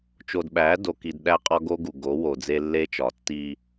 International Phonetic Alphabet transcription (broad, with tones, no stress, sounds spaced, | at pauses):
t͡ʃ o˨ d ɓ æ˨˦ d o˨ k i˨ d ɗ æ˦ qʼ ɒ˦ ɡ o˦ ɡ u˨ ɡ o˨˦ w o˨ d͡z e˦ lː e˦ t͡ʃ ɒ˨ tː i˦